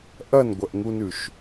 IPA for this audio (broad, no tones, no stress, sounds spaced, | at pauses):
ʔ ɐ n ɡʷ ɐ ʔ ŋ u n ʉ ʃ